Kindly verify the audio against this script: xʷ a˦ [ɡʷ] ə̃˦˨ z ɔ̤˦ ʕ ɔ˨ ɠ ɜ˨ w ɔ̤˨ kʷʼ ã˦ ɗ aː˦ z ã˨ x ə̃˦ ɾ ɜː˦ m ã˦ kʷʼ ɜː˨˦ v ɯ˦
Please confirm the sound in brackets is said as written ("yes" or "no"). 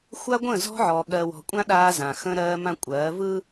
yes